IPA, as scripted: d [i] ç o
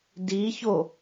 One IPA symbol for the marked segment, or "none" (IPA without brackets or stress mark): i